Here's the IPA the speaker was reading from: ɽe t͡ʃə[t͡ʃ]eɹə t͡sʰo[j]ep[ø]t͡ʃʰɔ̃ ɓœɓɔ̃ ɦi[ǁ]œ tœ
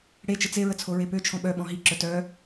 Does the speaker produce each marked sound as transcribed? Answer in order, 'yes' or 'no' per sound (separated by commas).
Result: no, no, yes, yes